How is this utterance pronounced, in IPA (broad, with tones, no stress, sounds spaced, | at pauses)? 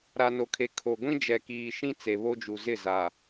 ɾ a˨ n o˨ kʰ e˨ kʰ o˨ ɡʷ ĩ˦ d͡ʒ ɛ˨ k iː˨ ʃ ĩ˦ t͡s e˨ β o˦ d͡ʒ u˨ z ɪ˦˨ z a˨